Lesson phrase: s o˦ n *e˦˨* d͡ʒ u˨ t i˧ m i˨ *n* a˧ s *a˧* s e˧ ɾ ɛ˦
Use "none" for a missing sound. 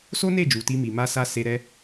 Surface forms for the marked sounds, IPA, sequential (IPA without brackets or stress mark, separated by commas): e˦˨, m, a˧